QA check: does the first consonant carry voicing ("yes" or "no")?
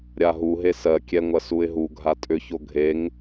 yes